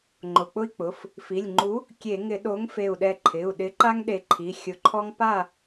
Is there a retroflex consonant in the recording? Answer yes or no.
no